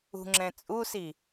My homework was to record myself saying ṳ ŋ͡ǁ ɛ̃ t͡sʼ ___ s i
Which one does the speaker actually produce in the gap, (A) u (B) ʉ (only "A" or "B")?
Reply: A